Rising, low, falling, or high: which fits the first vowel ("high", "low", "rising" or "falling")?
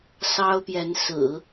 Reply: high